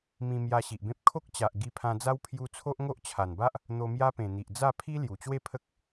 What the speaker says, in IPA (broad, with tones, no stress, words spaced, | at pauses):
mĩ˧ mja˧ɕi˨ʔbẽ˦p̚ kʰo˦k̚t͡ɕa˨ʔ ɡi˧pʰã˧d͡za˦w pʰju˦ t͡sʰo˦ʔŋo˦ʔt͡ɕʰa˨˩nba˦ʔ | n̪o˧mja˦pẽ˨˩n̪i˨ʔ d͡za˥˧pʰi˦ lju˨˩ t͡ɕwe˥˧ pʰə˦k̚